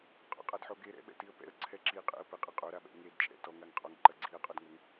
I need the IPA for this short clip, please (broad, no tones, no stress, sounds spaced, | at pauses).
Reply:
qʼ ɔ̰ qʼ a d ħ o ɡ e ɾ ɛ̰ ɓ ɛ̰ t i ə̯ p ɛ̰ ə̯ ǀʰ ɛ ǁ i qʼ ɛ̰ ə̯ p ɘ qʼ ɨ qʼ o ɾ a ɓ ɛ̰ ŋ e d t͡ʃʼ ɛ̰ t ɔ ŋ a ŋ qʼ ɔ ŋ ǃ ɐ ɡ͡ǀ i ə̯ qʼ ɔ d ŋ o ŋ